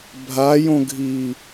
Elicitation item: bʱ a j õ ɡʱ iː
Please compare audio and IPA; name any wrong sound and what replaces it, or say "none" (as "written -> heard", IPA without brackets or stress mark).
none